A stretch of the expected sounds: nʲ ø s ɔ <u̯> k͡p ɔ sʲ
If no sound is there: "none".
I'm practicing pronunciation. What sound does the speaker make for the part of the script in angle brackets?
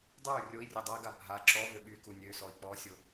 i̯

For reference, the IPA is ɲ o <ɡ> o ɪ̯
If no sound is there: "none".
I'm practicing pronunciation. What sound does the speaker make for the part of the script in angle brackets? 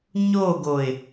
ɡ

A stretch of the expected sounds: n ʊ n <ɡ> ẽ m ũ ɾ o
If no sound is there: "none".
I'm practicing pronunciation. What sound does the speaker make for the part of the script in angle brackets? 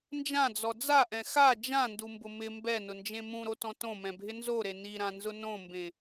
d͡ʒ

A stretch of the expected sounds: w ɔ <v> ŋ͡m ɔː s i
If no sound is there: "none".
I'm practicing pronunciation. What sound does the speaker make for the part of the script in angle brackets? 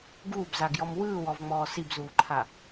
v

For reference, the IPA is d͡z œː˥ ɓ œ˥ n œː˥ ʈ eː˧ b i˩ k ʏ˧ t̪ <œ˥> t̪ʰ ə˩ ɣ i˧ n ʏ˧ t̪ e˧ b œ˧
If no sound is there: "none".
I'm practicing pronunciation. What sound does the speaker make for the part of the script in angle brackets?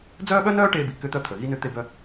œ˧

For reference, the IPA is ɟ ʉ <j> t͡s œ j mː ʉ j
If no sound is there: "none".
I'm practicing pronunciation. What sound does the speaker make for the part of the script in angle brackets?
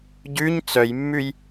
ɲ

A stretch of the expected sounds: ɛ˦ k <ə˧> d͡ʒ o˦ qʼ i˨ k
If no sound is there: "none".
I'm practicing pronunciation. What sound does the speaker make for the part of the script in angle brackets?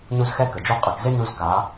ə˨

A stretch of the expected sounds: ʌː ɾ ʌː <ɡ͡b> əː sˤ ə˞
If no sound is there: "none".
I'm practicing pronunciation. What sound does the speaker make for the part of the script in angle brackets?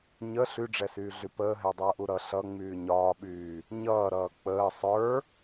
k͡p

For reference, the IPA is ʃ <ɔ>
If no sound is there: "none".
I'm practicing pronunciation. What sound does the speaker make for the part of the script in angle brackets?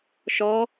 ɔ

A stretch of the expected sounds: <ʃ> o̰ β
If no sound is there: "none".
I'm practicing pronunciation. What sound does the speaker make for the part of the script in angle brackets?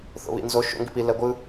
θ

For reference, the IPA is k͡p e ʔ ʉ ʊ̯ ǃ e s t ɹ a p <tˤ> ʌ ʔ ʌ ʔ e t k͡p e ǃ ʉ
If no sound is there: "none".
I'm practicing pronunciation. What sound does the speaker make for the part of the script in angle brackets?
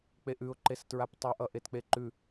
tˤ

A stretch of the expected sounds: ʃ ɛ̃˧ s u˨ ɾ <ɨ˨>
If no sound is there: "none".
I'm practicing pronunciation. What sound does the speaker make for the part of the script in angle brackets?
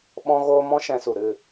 ɨ˦˨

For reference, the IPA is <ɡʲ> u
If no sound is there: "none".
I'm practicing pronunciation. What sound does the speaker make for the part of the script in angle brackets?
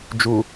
d͡ʒ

